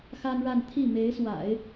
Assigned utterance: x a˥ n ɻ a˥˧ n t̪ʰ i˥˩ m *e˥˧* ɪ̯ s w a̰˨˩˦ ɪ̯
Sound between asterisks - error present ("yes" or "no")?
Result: yes